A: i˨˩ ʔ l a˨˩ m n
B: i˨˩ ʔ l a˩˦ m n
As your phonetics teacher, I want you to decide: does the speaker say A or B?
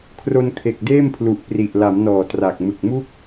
B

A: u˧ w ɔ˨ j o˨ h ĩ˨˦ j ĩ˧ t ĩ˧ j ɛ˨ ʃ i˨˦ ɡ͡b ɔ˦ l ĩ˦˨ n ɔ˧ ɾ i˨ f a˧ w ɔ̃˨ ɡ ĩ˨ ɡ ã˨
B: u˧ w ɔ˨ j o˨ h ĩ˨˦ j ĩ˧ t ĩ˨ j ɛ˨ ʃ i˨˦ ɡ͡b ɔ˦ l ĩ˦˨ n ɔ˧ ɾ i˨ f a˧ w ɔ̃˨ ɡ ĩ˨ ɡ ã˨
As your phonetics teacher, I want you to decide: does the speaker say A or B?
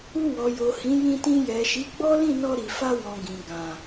A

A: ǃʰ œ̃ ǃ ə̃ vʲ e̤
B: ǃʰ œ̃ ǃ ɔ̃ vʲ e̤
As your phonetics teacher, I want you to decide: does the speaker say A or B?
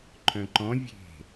B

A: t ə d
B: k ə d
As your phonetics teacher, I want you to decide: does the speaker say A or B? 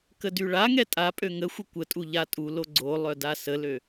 B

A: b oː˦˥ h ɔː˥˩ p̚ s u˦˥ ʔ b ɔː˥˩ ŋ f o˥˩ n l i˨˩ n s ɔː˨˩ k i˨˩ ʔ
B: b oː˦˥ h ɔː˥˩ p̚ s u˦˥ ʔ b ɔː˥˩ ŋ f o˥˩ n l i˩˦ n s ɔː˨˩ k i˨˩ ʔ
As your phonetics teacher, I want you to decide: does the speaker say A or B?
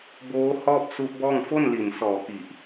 A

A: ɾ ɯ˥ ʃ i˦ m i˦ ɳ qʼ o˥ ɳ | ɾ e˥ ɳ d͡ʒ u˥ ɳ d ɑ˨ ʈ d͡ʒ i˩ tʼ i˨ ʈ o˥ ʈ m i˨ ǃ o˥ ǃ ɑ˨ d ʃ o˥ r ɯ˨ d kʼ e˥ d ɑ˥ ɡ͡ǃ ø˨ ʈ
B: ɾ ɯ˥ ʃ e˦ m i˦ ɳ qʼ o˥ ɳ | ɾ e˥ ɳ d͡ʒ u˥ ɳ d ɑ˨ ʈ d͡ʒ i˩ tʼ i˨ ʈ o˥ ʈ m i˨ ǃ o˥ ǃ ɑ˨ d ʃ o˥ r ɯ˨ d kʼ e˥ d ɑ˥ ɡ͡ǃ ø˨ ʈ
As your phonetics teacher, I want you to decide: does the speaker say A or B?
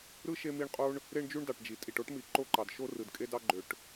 B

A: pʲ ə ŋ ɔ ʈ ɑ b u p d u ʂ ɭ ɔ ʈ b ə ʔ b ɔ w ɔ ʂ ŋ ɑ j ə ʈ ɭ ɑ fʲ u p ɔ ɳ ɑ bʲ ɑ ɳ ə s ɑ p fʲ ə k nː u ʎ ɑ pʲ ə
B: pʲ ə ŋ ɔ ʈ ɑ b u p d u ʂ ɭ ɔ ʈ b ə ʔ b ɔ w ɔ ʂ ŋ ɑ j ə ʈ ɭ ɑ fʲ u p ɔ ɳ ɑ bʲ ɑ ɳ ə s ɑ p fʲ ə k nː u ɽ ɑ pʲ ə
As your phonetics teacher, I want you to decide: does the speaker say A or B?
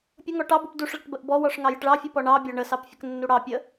B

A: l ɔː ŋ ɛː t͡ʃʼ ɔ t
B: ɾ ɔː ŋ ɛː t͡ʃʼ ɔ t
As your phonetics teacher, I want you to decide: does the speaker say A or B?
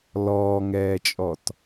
A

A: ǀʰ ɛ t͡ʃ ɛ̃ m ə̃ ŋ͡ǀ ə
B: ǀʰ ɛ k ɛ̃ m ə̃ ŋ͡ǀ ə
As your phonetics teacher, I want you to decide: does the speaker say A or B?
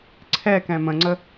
B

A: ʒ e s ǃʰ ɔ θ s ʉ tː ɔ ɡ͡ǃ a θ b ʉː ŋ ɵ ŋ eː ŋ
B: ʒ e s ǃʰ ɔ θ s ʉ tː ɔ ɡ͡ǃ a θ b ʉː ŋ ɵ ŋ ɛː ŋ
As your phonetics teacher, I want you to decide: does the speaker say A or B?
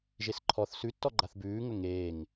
A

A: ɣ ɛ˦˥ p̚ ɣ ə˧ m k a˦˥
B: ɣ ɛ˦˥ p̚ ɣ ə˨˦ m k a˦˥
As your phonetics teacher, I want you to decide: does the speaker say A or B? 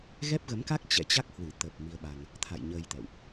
B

